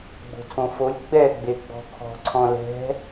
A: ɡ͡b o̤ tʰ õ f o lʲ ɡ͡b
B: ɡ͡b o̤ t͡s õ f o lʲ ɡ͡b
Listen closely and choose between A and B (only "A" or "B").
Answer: A